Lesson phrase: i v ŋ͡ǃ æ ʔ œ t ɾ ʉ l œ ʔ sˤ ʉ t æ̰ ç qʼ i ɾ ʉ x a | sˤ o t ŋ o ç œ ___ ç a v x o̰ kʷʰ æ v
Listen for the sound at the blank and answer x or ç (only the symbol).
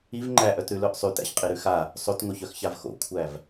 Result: x